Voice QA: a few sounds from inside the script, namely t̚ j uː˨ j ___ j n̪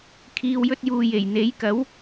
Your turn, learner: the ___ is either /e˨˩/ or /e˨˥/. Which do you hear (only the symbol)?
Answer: e˨˩